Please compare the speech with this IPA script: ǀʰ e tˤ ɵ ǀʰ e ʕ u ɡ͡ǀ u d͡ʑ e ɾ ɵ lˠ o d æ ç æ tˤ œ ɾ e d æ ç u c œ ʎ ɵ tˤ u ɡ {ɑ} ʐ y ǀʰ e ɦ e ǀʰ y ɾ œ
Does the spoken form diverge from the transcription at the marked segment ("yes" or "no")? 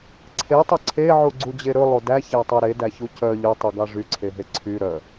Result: no